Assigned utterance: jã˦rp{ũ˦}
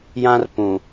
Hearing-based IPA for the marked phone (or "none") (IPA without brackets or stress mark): ũ˨